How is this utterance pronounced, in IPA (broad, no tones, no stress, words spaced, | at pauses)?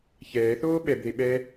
çɛːθoː ɓɛbðe ɓɛ